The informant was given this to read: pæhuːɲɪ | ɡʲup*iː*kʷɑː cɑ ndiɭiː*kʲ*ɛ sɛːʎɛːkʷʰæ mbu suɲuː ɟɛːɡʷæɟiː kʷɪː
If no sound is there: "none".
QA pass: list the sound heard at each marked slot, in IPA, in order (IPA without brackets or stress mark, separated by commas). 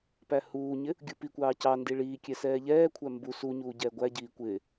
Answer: i, kʲ